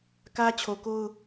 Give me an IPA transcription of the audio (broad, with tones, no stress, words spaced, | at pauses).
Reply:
kä˦t͡ɕʰo˨ko˦ʊ̯